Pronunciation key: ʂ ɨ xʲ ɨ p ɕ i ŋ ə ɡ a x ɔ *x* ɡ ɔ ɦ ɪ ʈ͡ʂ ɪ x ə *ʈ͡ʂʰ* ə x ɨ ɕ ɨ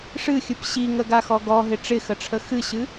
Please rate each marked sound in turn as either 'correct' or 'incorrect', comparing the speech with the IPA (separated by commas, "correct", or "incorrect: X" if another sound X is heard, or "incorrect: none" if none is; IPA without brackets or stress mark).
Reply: incorrect: none, correct